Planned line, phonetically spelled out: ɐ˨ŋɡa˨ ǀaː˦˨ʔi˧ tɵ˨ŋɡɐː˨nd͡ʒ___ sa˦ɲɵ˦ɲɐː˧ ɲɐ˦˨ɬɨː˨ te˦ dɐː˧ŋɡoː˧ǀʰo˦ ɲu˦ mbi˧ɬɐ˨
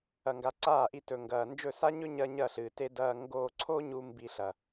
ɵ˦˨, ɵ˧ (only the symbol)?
ɵ˦˨